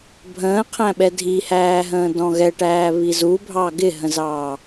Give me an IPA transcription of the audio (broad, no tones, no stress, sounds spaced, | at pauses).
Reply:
bʱ ə̃ː qʰ æ̃ ɓ ɛ dʱ i h æː ɦ ə̃ː d ɔ̃ ɣ ɛ ʈ æː β i z u bʱ ɑ ɡ ɪ ɦ ə̃ z ɑː